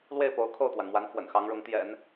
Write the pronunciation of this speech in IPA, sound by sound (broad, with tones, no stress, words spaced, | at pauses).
lwe˥˩ɪ̯po˧˥ʊ̯ kʰo˥˩ʊ̯t̪wa˩nmwa˧˥n fwə̰˨˩nxɑ˧˥ŋɻʊ˧˥ŋt̪jɛ̰˨˩˦n